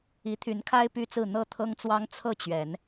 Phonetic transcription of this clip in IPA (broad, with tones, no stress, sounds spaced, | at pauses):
i˨˦ t̪ʰ y˨˦ n kʰ a˦ ɪ̯ p y˦ t͡s ɹ̩˥˨ n̪ ɤ˥˨ t̪ʰ ɤ˦ ŋ t͡s w ɑ˦ ŋ t͡sʰ ɤ˥˨ t͡ɕ ɥ ɛ˨˦ n